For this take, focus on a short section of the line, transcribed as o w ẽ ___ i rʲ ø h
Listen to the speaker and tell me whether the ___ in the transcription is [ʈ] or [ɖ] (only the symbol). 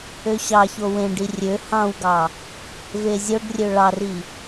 ɖ